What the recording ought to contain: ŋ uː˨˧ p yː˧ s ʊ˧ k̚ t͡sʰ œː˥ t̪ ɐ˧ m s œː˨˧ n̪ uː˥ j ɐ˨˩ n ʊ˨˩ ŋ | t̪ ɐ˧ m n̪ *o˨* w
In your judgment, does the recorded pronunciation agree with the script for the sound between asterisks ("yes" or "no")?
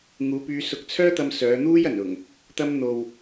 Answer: yes